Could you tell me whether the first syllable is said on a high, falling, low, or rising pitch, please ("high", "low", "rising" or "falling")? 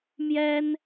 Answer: high